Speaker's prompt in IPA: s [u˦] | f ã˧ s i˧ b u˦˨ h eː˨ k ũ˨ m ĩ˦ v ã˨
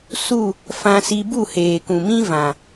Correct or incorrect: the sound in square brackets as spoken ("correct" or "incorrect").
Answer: incorrect